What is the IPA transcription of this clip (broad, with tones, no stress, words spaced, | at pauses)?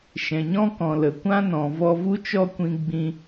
ʃɛ̃˨ɲɔ̃˦kɔ̃˨ lə˨kʷã˦nɔ̃˨ vɔ˧vu˦t͡ʃɔ˦kʷĩ˧ ɡ͡bĩ˧